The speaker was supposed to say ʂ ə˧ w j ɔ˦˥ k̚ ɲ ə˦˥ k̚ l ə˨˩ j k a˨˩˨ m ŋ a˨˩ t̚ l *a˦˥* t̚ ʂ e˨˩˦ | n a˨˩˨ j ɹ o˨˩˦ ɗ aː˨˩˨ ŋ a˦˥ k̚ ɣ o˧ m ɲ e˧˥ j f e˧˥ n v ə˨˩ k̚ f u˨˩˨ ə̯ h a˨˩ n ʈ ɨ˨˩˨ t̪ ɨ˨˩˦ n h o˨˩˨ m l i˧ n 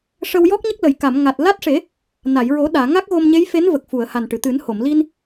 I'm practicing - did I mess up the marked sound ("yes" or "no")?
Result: no